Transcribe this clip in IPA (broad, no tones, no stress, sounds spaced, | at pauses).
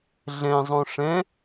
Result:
ɮ ɛ̃ zˤ õ ʂ ɛ̃